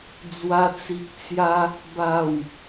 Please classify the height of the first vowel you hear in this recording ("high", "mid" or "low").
low